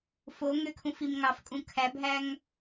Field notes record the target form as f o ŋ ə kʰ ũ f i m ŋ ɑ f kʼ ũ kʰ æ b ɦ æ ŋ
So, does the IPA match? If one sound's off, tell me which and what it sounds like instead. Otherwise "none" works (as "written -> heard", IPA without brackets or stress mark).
ə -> ø